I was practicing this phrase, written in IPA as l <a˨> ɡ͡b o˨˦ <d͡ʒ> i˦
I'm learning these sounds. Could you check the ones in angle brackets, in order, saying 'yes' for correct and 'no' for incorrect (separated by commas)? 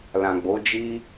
no, yes